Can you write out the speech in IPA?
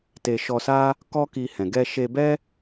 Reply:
te˧ ʃɔ˧sa˦ | kɔ˦ki˧hɛ̃˨ ɡɛ˧ʃe˧bɛ˦

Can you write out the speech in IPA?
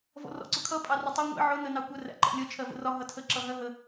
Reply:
vɔ̰rɔ̰ǀʊkʰʌ pʼɑrətˤʊ ŋʷḭ ʕʊ nənɑkʷə ræ̰ǃɔ̰lʲʌ t͡ʃʰɜvə̰rɒ ɦʌtʰə ǁʌɦɜɦə

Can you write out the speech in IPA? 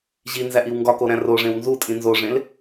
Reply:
ʑinzæʔiw ŋɡɒkoɾæ̃ roʐẽw nzutʼĩ nzoʐẽl

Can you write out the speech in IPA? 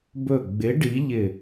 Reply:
bɵ˧˩ɡ͡bɪ˨˥ ɖi˨˥ʎɪ˧˩

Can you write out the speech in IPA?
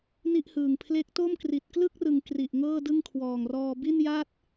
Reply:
ni˥˩ʔhɯː˨˩ŋ pʰle˦˥k̚to˥˩m kri˨˩t̚klɯ˥˩k̚rɯ˨˩ŋ kri˨˩ʔŋɤː˥˩ dɯ˥˩ŋkʰwɔː˨˩ŋrɔː˧ bi˥˩nja˥˩t̚

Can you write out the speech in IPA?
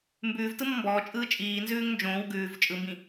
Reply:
mbʉːvtɯmɔ mbɔːt͡ʃʼɯː t͡ʃʼiːnzʉːŋ nd͡ʒõːw ɡʉːv t͡ʃʼɯmbĩ

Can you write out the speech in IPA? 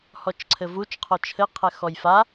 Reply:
hɔt͡ʃǀʰɘvut͡ʃ qʰɔt͡ʃʰɘ qʰɛxɔjfa

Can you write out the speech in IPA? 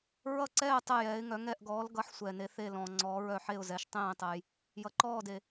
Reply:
ɹʌ˦˨ǀɛː˦˨ tˤɛ˦˨jɛː˨˦ɪ̯ŋœ˨˦ ŋɛ˦˨ʔɡɔː˨˦lɡʌ˨˦ħ sʷɛː˨ne˨˦ θe˦˨lɔ̃˨ŋ͡ǀɔː˨˦ ɹœ˦˨ħe˦˨ʊ̯zɛ˨˦ʃ tˤẽː˦˨tˤɛ˨j | jʌ˨ǃɔː˦˨de˨

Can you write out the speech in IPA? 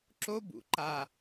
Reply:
ǁo bṵ ǃa

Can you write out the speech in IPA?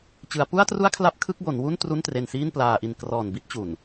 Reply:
t͡ɕɯ˩˦a̯pu˥˩a̯tru˥˩a̯kʰla˦˥p̚ kʰɯ˥˩k̚bo˩˦nwu˥˩n tru˥˩ntre˧nsiː˥˩nplaː˧ ʔi˨˩nkrɔː˨˩nbi˦˥t̚ t͡ɕu˨˩n

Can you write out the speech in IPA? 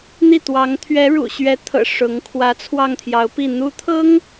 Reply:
n̪i˥˩ t̪wɑ˧˥ŋ t̪ʰɥɛ˧˥ɻṵ˨˩ɕɥɛ˧˥t̪ʰɤ̰˨˩ ʂʊ˧˥ŋ kʰwä˧˥t͡sʰwɑ˥˩ŋt̪ʰjɑ˧˥ʊ̯pi˥˩ n̪u˧˥t̪ʰɤ˥ŋ

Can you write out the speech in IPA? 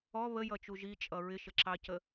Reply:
ɔ βəjʌt͡ʃu ʒit͡ʃʼʌ ɹɪʃəǁɑcə

